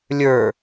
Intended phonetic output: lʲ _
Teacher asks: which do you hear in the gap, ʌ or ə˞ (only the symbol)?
ə˞